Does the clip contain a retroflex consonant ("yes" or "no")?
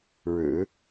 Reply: yes